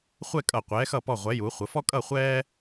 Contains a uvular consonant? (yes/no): yes